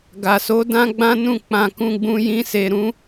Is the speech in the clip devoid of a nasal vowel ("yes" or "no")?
no